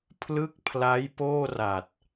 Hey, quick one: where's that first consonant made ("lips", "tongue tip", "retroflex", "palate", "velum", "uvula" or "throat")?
lips